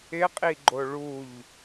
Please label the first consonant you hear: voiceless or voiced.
voiceless